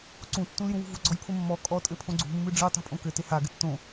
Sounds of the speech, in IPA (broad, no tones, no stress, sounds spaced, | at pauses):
ǀ ũ tː ũ l j ũ w ṳ v u ɡ͡ǀ ɔ j pʰ o mː ɔ kʼ ɔ tʼ ɘ pʰ õ ɡ͡ǀ ṳ mː ɨ ɖ͡ʐ ɨ tˤ ṳ pʼ õ k ɘ t e h a ɡ ɘ tː õ